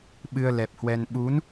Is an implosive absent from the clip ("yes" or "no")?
no